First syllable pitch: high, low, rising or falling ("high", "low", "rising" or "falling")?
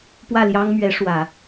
falling